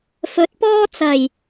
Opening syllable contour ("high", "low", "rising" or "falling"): rising